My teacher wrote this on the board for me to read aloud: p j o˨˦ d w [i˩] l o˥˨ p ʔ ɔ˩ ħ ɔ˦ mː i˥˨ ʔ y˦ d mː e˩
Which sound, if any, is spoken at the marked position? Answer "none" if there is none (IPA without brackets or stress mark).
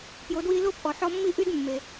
i˦